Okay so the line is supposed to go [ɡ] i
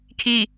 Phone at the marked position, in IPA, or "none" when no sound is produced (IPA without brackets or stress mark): kʰ